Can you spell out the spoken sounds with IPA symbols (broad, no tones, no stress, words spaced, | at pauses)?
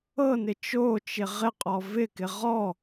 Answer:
ɤnɪ t͡ʃot͡ʃɪ ʁɪqʼɔ vɪkɪ ʁɔ